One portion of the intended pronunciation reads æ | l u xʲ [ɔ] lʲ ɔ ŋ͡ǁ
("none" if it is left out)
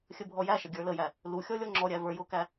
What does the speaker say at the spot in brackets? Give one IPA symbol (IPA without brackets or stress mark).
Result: ɔ